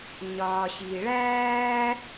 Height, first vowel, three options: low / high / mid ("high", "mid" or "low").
low